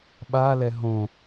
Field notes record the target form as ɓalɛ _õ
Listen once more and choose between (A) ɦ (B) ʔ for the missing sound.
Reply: A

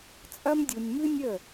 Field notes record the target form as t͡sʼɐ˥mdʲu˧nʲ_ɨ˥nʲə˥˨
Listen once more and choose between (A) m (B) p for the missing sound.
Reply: A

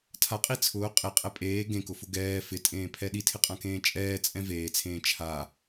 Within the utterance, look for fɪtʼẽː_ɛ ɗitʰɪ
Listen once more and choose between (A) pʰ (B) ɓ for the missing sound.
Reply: A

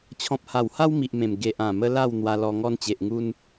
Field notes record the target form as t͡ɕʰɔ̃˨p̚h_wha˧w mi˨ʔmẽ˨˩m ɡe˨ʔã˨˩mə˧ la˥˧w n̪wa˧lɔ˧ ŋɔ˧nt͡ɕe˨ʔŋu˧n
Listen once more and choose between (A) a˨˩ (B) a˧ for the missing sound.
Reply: A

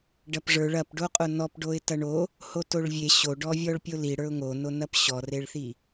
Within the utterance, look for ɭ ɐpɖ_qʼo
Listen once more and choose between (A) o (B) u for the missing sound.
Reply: A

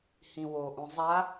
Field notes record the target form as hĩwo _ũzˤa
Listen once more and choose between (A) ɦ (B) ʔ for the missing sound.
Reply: B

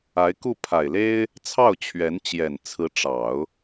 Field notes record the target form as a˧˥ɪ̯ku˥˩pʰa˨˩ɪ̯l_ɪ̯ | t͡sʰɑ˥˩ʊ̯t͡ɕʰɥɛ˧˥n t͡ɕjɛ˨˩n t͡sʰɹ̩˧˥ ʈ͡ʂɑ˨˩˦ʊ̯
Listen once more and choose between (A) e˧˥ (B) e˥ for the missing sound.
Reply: B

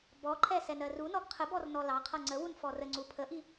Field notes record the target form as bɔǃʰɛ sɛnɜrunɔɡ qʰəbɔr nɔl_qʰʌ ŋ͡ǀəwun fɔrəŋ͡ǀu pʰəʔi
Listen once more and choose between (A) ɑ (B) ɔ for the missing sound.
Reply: A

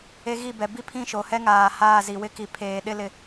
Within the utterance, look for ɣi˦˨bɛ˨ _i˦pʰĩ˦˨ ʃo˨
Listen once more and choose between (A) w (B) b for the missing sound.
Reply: B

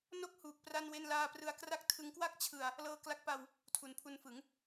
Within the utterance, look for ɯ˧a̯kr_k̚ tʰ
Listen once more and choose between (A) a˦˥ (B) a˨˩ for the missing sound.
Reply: A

